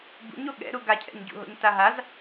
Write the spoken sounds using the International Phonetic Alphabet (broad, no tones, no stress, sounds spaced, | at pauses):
b ṵ ɲ o ɠ ɛ̰ ɾ u ɡ a cʰ ɛ̰ ɲ ɟ ṵ ɦ o̰ ɲ t a ɦ a z